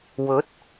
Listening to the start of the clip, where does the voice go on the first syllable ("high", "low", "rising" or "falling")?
rising